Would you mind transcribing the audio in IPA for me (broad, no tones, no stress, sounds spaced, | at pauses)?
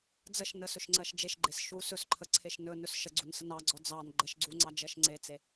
d͡z ə ʃ n ə s ɵ ʃ ŋ͡ǀ ɜ ʃ d͡ʒ e ʃ ɡ͡ǃ e s ʃ u s ɵ s ǃʰ ə ǀʰ e ʃ n ɵ n ɵ s ʃ ə ɡ͡ǀ u n s ə n ɑ ɡ͡ǀ ɔ d͡z ɑ n ɡ͡ǃ ɜ ʃ ɡ͡ǀ u ŋ͡ǀ ɑ d͡ʒ ɜ ʃ ŋ͡ǀ e t͡s e